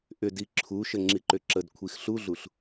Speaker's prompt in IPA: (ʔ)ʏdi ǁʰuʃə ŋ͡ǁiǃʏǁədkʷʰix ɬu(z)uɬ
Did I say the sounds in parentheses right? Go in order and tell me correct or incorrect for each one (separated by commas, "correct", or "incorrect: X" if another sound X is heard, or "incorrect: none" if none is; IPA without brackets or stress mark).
correct, incorrect: ɮ